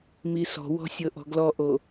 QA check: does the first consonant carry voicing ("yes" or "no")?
yes